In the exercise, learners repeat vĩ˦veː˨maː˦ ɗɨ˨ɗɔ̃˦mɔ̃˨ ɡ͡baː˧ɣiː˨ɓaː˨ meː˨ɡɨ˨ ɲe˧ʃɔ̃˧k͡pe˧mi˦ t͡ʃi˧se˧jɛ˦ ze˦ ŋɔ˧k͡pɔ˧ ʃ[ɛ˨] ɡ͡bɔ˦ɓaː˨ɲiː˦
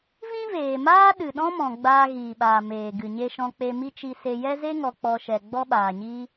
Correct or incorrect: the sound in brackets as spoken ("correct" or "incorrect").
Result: correct